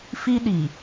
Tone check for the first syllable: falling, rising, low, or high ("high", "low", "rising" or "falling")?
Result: high